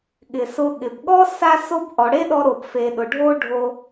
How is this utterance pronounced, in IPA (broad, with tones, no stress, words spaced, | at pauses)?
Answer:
ɠɪ˨sʊ˧ ɠɪ˨bɠɔ˦ sa˦so˦b ʔɔ˨ɽe˦ɗɔ˧ɾo˨b fe˨ɗʊ˨ɖʱo˦ ɖʱo˧